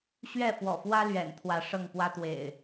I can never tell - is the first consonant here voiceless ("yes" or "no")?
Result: yes